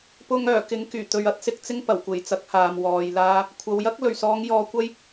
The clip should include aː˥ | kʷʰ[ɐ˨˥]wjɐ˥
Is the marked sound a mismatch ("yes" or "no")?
yes